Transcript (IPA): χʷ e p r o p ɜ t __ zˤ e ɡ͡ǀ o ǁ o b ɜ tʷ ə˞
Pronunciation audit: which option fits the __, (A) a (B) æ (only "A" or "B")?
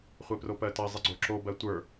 A